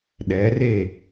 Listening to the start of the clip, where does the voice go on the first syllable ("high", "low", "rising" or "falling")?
rising